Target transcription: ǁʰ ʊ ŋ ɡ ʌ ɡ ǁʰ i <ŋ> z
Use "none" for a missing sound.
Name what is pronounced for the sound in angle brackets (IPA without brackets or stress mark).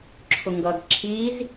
none